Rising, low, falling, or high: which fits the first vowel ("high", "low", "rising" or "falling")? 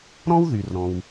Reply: high